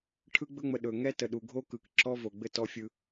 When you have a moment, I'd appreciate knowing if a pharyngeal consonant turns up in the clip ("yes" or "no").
no